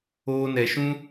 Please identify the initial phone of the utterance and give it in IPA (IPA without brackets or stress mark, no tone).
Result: oː